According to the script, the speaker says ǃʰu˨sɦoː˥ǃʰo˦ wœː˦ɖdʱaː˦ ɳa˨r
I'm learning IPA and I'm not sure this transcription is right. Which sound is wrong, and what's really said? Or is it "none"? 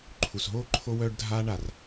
none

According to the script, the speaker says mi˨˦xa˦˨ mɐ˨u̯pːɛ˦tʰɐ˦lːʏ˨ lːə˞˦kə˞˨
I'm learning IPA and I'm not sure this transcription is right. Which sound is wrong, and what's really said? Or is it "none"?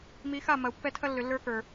none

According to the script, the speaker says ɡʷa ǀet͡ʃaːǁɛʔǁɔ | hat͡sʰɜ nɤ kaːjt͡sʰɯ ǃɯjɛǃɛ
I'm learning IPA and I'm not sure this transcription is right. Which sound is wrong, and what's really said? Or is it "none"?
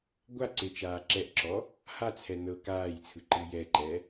ɜ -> ɛ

